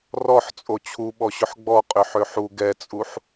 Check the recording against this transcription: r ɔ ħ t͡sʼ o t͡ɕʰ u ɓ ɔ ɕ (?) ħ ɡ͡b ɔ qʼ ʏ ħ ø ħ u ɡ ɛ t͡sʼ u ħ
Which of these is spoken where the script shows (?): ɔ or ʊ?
ʊ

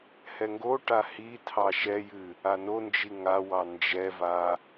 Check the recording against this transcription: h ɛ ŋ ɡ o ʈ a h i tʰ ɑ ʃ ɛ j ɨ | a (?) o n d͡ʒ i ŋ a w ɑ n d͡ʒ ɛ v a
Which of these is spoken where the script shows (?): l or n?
n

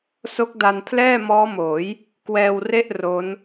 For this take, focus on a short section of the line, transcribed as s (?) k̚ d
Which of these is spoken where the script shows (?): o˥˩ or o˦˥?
o˦˥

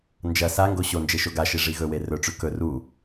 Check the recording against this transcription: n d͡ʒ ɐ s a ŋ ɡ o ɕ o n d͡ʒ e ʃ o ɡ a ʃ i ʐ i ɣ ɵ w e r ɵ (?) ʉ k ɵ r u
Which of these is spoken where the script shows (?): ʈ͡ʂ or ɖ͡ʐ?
ʈ͡ʂ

